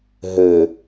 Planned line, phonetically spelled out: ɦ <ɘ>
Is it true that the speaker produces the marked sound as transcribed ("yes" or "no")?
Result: yes